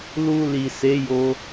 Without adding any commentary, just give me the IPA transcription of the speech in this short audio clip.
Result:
l u˧ l i˨ s e˨˦ j o˧

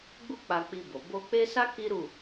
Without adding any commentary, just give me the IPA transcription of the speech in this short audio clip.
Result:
ɡ͡b u˦ k͡p a˧ k͡p i˧ b o˨ b o˧ k͡p e˦ s a˦ k i˦ ɾ u˦˨

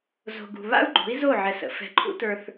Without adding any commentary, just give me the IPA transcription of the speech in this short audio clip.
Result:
z o̤˨ ɡ ṳ˨ β a̰˦ u̯ ɡ͡ǃ o̤˨˦ i̯ z o˦˨ ʕ ɛ˨ s ə̰˨ f ɛ̤˨ ǃʰ ṵ˦ t ə˞˦ θ

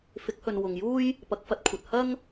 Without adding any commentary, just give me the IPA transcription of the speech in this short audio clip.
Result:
f ɪ˨˥ k̚ h ɵ˨ n w ʊ˨ ŋ j uː˥ j | p ɐ˨˥ k̚ f ɐ˨˥ t̚ kʷʰ ɐ˨ t̚ h ɐ˥ ŋ

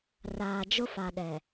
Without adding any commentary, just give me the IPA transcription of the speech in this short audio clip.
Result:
r aː˨ d͡ʒ ʊ˦ f a˨ ɗ ɛ˨

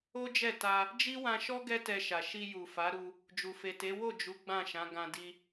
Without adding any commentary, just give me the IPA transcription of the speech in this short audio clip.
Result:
o˦ d͡ʒ ɛ˦˨ t a˧ | d͡ʒ i˦ w ã˧ ʃ ɔ˦ ɡ ɛ˦ t ɛ˧ ʃ a˨ ʃ i˧ j u˨ f a˨˦ ɾ u˧ | d͡ʒ u˨ f e˨ t e˨˦ w o˦˨ d͡ʒ u˨˦ ɡ͡b ã˦˨ ʃ ã˨˦ ɡ ã˧ d i˧

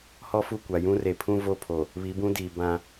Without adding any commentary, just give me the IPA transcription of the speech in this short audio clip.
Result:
h ɔ˦ f u˦˨ kʷ a˨ j ũ˦ r e˨ pʰ ũ˦ v o˦ pʰ o˨ | β i˨˦ b ũ˦ d iː˨ b ã˦

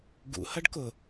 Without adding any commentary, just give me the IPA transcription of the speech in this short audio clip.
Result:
ɡ ṵ h ɐ ɖ k ʊ

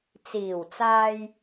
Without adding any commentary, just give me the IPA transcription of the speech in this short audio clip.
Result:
t͡s iː˨˩ w t͡s aː˨ j

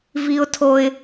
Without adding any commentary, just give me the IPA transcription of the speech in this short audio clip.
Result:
v i˦ ʊ̯ tʰ o˦ ɪ̯

